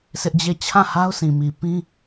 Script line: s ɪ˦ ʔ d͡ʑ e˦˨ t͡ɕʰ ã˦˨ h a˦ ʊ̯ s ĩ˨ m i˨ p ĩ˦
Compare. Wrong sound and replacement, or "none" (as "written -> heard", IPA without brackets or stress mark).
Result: none